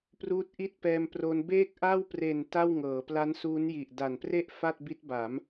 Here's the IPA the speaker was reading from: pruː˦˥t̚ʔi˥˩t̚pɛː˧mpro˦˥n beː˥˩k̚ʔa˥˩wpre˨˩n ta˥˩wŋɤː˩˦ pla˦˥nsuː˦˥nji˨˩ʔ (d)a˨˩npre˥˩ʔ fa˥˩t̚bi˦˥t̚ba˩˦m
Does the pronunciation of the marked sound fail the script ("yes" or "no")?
no